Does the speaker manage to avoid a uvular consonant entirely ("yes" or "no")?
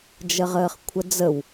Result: no